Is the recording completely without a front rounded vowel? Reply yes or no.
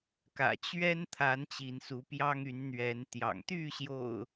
no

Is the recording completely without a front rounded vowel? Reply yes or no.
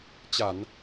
yes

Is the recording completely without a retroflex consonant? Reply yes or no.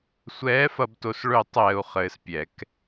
no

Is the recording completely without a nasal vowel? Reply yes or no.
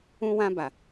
no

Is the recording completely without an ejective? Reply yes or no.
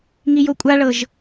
no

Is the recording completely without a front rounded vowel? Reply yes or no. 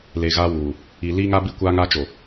yes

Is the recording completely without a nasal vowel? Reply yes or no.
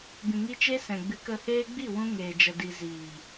no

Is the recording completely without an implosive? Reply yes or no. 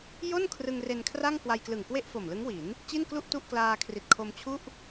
yes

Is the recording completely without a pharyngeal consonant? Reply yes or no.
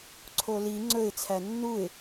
yes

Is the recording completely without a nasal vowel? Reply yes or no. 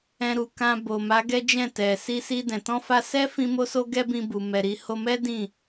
no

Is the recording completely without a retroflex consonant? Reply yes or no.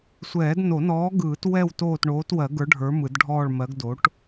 no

